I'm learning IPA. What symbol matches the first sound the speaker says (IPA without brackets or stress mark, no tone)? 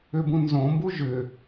ʏ